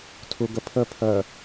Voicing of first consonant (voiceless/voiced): voiceless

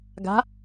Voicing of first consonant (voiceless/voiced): voiced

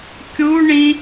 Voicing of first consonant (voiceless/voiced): voiceless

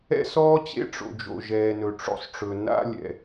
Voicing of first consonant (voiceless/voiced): voiceless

